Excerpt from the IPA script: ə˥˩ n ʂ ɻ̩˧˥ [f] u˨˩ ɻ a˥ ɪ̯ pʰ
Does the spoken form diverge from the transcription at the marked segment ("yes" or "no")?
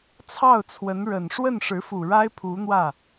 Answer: no